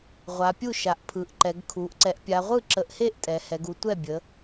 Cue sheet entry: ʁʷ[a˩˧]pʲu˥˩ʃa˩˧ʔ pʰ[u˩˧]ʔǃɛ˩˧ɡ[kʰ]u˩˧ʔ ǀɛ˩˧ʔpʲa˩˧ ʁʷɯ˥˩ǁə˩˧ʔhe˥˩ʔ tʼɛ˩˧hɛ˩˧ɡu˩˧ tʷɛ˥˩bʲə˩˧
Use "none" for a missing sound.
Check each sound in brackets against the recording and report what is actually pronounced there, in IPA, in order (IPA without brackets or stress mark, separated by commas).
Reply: a˩˧, ɯ˩˧, kʰ